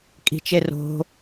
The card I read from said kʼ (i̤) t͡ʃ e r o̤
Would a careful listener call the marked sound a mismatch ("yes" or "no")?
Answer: no